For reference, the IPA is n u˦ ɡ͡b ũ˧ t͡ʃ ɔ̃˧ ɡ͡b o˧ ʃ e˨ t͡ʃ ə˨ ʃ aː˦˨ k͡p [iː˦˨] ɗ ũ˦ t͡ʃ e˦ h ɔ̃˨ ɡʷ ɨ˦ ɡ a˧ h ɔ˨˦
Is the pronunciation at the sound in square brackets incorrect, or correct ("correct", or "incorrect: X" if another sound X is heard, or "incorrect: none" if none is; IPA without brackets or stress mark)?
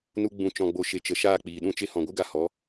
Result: incorrect: iː˨